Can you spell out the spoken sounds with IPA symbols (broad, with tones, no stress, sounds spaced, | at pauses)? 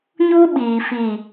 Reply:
ɲ u˦ ɓ iː˨ f i˨